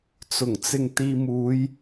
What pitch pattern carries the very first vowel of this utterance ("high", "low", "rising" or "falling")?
low